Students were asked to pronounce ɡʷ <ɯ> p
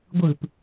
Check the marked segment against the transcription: correct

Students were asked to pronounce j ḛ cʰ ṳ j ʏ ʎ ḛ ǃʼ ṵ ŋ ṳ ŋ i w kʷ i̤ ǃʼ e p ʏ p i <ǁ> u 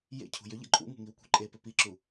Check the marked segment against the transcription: correct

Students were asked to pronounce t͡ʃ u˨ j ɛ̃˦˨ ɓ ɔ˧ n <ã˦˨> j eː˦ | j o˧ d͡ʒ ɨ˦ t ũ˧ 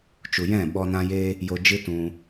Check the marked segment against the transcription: incorrect: ã˦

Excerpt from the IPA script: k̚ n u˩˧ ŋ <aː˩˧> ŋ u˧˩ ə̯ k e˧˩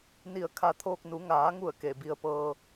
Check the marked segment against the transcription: correct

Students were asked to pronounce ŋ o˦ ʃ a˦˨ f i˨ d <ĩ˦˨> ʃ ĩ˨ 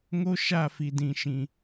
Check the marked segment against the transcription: incorrect: ĩ˨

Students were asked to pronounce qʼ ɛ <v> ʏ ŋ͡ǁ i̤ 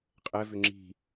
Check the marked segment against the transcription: correct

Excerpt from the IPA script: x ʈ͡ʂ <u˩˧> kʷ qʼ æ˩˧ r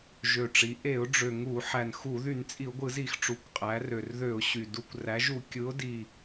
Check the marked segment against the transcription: correct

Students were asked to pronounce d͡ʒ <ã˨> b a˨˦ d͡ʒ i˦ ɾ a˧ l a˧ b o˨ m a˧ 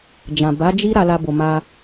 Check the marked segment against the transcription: correct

